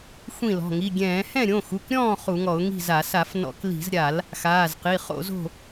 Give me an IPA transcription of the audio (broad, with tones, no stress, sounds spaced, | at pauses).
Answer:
xʷ ĩ˥˨ l ɔ̤˩˧˩ ŋ i˩˧˩ ɡʲ ɛ̃ː˧˩˧ h ɛ̃˥˨ ɾʲ õ˩˧˩ x u˩˧˩ k ɾʲ ɔ̃ː˥˨ χ u˧˩˧ ŋ ɔ˧˩˧ ʊ̯ ŋ i̤˥˨ z a˧˩˧ s a˧˩˧ f n ɔ̰˧˩˧ k l i̤˧˩˧ z ɾʲ a˧˩˧ l | x aː˩˧˩ z q i˩˧˩ χ o̰˧˩˧ z o̤˥˨